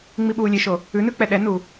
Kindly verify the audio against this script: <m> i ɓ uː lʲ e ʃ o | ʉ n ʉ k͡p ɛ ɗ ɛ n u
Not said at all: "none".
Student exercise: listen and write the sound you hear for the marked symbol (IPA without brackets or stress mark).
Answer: ŋ͡m